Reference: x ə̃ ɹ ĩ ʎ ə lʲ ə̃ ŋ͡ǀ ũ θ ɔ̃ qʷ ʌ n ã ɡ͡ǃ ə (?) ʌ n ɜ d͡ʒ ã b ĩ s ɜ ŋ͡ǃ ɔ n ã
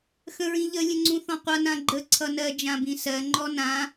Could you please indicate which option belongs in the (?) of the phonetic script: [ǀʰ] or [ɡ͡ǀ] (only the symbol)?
ǀʰ